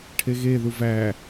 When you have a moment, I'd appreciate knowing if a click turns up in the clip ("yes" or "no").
no